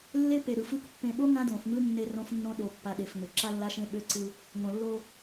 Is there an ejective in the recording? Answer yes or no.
no